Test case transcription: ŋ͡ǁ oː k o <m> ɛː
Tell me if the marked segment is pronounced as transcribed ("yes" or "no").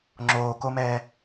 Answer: yes